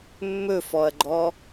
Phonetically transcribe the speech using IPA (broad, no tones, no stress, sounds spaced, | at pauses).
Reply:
mː ɵ f ɔ ɐ̯ ɡ͡ǃ ɔ